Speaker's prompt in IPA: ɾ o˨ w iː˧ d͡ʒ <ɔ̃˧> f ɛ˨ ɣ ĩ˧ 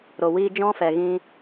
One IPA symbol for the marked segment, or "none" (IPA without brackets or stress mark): ɔ̃˦